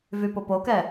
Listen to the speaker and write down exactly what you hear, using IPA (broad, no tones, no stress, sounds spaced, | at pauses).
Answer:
v y p ʊ p o k ɛ